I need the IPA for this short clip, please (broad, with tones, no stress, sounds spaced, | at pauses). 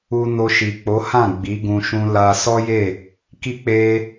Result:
u˧ n o˧ ʃ i˨ k͡p o˨˦ h ã˦˨ ɡ͡b i˨˦ ɡ ũ˧ ʃ ũ˧ l a˧ s ɔ˦ j e˦˨ | k i˦ k͡p e˦